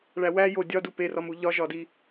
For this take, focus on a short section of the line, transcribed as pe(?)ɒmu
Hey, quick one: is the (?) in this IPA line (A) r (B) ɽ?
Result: A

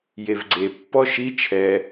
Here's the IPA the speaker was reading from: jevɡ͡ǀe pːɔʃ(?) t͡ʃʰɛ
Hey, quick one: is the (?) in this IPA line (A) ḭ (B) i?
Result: B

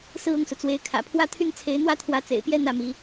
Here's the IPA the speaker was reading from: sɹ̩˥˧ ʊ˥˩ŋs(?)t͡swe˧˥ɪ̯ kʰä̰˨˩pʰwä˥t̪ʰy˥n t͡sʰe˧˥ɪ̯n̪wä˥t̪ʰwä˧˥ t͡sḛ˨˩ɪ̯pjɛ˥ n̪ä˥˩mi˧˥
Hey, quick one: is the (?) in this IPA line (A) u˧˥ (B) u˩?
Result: B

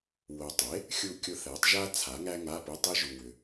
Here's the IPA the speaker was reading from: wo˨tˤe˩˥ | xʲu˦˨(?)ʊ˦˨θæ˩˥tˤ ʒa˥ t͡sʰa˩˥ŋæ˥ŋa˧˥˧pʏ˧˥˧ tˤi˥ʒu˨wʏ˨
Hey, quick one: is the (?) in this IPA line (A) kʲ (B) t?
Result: A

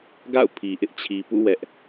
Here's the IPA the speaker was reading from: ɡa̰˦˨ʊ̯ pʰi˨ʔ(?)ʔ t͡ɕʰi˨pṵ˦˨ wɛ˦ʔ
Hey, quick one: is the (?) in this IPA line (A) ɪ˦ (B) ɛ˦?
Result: A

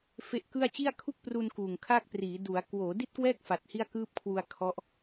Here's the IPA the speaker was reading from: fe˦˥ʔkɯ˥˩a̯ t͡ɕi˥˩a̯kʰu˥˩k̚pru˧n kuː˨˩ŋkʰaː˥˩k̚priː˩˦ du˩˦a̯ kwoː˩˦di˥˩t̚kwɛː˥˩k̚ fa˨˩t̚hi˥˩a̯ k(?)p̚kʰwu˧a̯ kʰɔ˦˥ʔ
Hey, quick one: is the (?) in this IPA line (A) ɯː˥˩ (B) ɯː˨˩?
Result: A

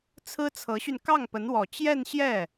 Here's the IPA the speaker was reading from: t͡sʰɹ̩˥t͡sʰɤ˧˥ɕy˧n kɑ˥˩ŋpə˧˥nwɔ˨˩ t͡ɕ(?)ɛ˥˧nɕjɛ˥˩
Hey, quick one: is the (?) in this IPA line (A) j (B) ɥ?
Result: A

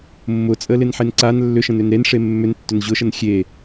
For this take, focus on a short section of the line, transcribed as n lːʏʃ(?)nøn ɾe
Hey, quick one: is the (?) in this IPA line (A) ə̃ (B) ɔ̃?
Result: A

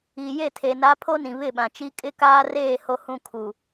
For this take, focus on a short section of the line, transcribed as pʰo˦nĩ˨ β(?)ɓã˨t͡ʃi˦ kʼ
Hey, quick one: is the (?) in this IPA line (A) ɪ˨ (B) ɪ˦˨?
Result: B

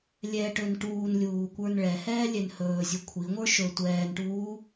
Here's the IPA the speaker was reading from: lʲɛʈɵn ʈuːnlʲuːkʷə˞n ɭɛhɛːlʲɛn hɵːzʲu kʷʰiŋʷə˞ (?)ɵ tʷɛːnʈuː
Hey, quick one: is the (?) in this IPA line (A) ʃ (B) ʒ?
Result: A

